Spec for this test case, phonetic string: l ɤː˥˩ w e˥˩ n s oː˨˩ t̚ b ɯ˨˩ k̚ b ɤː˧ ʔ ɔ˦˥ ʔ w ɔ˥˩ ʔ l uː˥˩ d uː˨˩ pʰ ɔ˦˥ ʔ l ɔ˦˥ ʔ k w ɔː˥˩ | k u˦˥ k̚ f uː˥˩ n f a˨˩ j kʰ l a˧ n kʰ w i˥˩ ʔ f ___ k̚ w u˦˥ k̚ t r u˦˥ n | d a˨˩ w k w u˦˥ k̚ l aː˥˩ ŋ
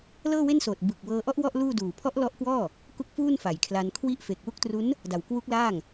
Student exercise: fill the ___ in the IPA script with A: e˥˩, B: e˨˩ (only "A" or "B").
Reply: B